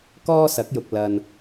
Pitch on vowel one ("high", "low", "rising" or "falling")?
high